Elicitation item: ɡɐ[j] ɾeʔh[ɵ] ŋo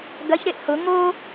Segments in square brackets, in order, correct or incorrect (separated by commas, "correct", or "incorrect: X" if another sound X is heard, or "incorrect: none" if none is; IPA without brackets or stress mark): incorrect: ç, incorrect: ʊ